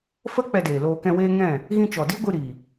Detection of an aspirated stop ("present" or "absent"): absent